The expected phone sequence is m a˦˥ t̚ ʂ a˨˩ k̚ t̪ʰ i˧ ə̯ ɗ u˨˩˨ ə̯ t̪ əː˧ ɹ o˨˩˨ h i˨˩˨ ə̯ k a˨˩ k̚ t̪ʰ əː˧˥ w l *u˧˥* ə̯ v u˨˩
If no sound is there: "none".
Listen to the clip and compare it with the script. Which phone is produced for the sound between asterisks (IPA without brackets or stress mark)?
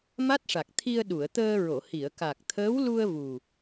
u˧